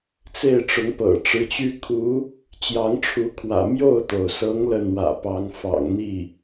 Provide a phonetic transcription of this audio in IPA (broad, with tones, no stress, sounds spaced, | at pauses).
t͡s e˥˩ ɪ̯ ʈ͡ʂ ʊ˧˥ ŋ p ɤ̰˨˩ ʈ͡ʂ ɻ̩˧˥ t͡ɕ y˥ kʰ u˧˥ | t͡ɕ j ɑ˧˥ ŋ ʈ͡ʂʰ u˧˥ kʰ w ä̰˨˩ m j o˥˩ ʊ̯ t̪ o˩ ʊ̯ s ɤ˧˥ ŋ l ə˥˩ n w ä̰˨˩ p ɑ˧˥ ŋ f ɑ̰˨˩ ŋ n̪ i˥˩